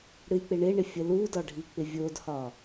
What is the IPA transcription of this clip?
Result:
ɽ ɨ j k͡p ɪ ɳ ɪ ɳ ɪ fʲ ə l u d ɒ ɖʱ i k͡p ɪ vʲ o d h ɒ

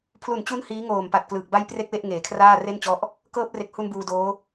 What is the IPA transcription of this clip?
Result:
pʰ l u˨˩ n t͡ɕ u˦˥ n h iː˦˥ ŋ oː˨˩ m p a˨˩ t̚ k l ɯː˨˩ k̚ b a˥˩ j p r e˥˩ k̚ w e˥˩ ʔ ŋ eː˨˩ kʰ r aː˥˩ r e˥˩ n t͡ɕ ɔ˦˥ ʔ | k ɤː˦˥ p̚ r e˨˩ k̚ h u˧ n b uː˧ d oː˦˥

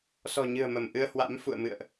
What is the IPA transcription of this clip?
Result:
s ɔ̤˨˩ ɲ ɨ̤˨˩ ə̯ m ə˧˩ m ʔ ɨ˧ ə̯ h w a̰˧˥ m f ṵ˧˨ ə̯ m ɨ̰˧˨ ə̯ ʔ

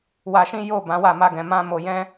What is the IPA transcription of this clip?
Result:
w a˧ ʃ ĩ˦ j o˦˨ b ã˨˦ w a˦˨ m a˧ ɡ ɛ̃˨ m ã˧ m o˨ j ɛ̃˧

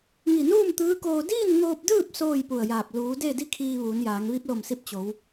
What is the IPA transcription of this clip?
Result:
ŋ i˧˩ n uː˥˨ m t̪ ɯː˧˥ k oː˧ d iː˥˨ n ŋ oː˧ p̚ d ɯː˥˨ p̚ s oː˥˨ j p u˧˩ ə̯ j aː˧˩ p̚ l uː˩˧ d e˥˨ d i˥˨ kʰ iː˧ ʋ uː˩˧ n j aː˩˧ ŋ ʋ i˧˥ p̚ l o˧˩ m s i˧ p̚ t͡ɕ o˩˧ w

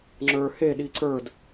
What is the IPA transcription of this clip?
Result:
ŋ͡ǁ ə˞ h e ɗ i ǀ ə˞ d

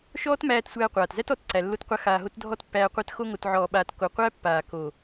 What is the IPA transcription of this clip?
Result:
ʃ ɔː˦ t m æː˧ t sʷ æː˧ qʷ aː˨ t z æ˦ t ɔ˨ t ǀ æ˨ lː o˧ t qʷ a˧ x aː˨ ɦ o˧ t dʱ ɔ˦ t pː æː˧ qʷ æ˦ t x o˧ ŋ o˨ t ʕ ɔː˨ ɓ aː˨ t k o˨ qʷ æ˦ pː aː˨ k o˨

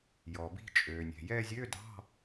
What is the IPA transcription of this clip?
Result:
j ɔ˩ b i̤˦˨ t͡ʃʼ øː˩ nʲ ɛ̤˩ j ɛ˦˨ zʲ ø˧˥˧ d ɑ̤˧˥˧

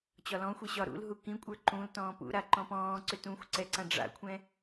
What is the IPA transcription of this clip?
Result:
t͡ɕ ɒ l ɔ̃ xʷ i ɕ ɒ ɾ ṵ l ɦ u k ĩ kʷʼ ə˞ ǃ ũ l t ɔ̃ː p ṵ ɾ a ǃ ɔ̃ p ɔ̃ː ǀ ʏ t ũ xʷ ǀ ɛ ǀ ã ɖ͡ʐ a̰ kʷʰ ɛ̃

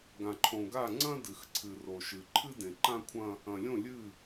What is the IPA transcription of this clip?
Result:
ɡ ã˨ ǃʰ õ˨ ɡ a˦˨ ŋ͡ǀ ɐ̃˦ d ɨ˨ x ǀʰ ɨ˨ r o˨ ʃ ɨ˨ ǃʰ ɨ˦ d ẽ˨ ǃ ã˦ kʷʰ ɐ̃˦ | ɐ̃˨ lʲ õ˦˨ lʲ ɨ˦˨

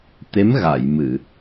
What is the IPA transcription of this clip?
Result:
t̪ e˧˥ m ɣ a˨˩˨ j m ɨ˨˩˨

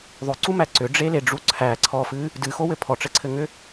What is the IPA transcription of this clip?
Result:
ðˤ ʏ ǀ u m æ ǀ ʏ ɖ͡ʐ e l e ɖ͡ʐ u ǀʰ æ ǀʰ ɔ f ɨ | d ɨ x o w ɘ pʰ ɔ ʈ͡ʂ ɘ ǀʰ ɘ ŋ ʏ

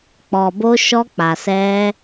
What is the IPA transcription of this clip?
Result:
k͡p ɔ˨ b o˧ ʃ ɔ˧ k͡p a˨ s ɛ˧

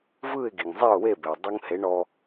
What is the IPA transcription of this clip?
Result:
v ɯ˥˩ ɪ̯ ɡ i˩ ŋ zˤ e˥˩ ʊ̯ w e˥˩ b e˩ w dˤ u˧ ŋ h e˩˥ ɳ ɔ˧

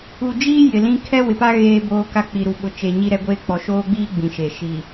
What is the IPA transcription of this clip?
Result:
u˨ d͡ʒ iː˦ j ɪ˨ l ĩ˦ kʰ ɛ˦ w ɪ˨ p a˦ ɣ eː˦ b oː˦ k a˦ k͡p i˨ ɾ u˨ ɓ ʊ˨ t͡ʃ e˨ ɲ i˦ ɾ ɛ˦ ɡʷ eː˦ k͡p ɔ˨ ʃ oː˦ ɡ͡b iː˦ ɡ͡b ĩ˨ ʃ e˨ ʃ i˨

